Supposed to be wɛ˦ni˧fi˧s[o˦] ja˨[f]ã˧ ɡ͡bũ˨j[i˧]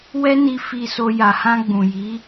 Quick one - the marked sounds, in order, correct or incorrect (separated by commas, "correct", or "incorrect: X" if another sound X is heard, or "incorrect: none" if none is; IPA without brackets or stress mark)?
incorrect: o˧, incorrect: h, incorrect: i˨˦